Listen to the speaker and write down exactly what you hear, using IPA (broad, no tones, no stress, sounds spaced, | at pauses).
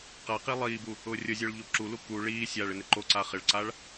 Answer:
q a q i lˠ iː b u | ʊː rʲ ʊ zʲ ʊː ɭ ʎ o ǁ u l u k u ɭ iː sʲ a ɭ ɪ n ɪ ǃ o ǀ a χ ɪ ɭ ǀ aː ɭ